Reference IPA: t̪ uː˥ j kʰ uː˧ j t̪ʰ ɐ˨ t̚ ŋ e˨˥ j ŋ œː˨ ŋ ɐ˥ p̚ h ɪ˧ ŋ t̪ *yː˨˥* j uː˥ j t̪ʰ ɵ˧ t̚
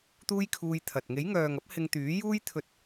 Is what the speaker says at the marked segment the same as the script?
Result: yes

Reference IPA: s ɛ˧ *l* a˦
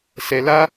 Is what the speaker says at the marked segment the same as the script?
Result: yes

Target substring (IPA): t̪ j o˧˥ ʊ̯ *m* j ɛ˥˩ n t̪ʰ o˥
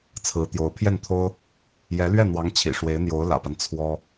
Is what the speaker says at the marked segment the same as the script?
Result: no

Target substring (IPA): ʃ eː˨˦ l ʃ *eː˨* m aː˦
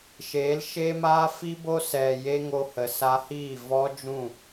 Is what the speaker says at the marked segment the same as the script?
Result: no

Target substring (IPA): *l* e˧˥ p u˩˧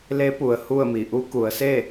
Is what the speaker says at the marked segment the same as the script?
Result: yes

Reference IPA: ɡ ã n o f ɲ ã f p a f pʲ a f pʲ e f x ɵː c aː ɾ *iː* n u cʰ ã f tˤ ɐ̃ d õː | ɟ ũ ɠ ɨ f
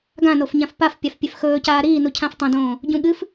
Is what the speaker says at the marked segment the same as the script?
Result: yes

